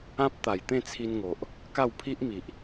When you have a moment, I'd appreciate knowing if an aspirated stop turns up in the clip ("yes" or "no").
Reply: yes